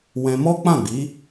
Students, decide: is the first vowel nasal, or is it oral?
nasal